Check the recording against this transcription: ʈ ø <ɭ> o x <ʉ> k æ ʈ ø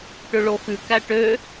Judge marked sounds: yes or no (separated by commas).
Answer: yes, yes